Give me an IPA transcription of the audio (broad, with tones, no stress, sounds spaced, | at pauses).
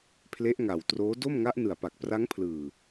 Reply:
pʰ l e˦˥ ʔ ŋ a˨˩ w t r oː˦˥ d o˥˩ m ŋ a˦˥ ʔ n ɯ˨˩ a̯ p a˨˩ k̚ p r a˦˥ ŋ pʰ l ɯː˨˩